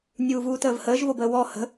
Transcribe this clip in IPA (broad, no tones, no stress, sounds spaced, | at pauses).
nʲ uː v uː t əː v h əː ʒ v o b əː w ɔ h ə̤